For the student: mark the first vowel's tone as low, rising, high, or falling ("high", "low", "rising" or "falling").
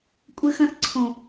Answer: high